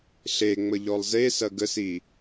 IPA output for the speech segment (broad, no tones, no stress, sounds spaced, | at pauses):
ɬ e ŋ͡m ə ʎ ɔ lˠ z e s ɐ ɡ ə s i